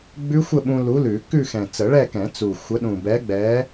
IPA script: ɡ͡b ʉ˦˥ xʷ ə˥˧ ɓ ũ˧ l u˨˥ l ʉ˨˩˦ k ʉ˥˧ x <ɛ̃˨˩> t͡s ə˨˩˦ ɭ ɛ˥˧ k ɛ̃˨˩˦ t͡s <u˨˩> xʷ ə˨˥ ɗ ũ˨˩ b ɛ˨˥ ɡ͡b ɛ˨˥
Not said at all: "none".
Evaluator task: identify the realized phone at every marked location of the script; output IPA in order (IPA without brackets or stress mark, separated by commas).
ɛ̃˨˩, u˨˩